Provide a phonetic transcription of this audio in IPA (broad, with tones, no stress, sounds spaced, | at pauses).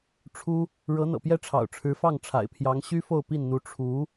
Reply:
ʈ͡ʂʰ u˥ | ɻ ɤ˧˥ n̪ ɤ̰˨˩ p j ɛ˥˩ ʈ͡ʂʰ ɑ̰˨˩ ʊ̯ ʈ͡ʂʰ ɻ̩˧˥ f ɑ˥˩ ŋ ʈ͡ʂʰ a̰˨˩ ɪ̯ pʰ j ɑ˧˥ ŋ ɕ y˥ f o˥˧ ʊ̯ p i˥˩ n n̪ u˧˥ ʈ͡ʂʰ u˧˥